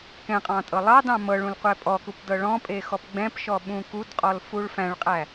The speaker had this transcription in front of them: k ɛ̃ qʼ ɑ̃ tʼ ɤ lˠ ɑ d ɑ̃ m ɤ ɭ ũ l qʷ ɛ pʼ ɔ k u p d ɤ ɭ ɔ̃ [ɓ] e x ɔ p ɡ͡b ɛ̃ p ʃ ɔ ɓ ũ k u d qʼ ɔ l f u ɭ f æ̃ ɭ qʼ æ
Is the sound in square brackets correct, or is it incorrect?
incorrect